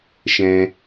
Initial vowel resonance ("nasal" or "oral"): nasal